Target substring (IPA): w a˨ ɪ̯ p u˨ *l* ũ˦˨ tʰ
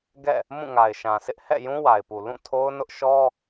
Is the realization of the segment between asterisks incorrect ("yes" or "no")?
no